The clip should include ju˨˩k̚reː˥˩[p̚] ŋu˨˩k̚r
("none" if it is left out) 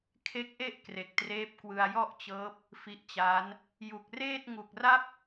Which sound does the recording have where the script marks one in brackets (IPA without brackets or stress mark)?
t̚